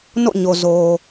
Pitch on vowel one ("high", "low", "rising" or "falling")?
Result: falling